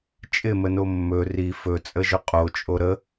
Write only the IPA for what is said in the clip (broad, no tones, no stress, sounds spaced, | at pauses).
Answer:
t͡ʃʼ ɪ m ə n o mː ɵ r i f ɵ t͡sʼ ə ʒ ʏ qʼ o t͡ʃʼ o ɾ ə